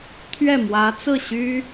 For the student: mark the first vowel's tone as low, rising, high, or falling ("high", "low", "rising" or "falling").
falling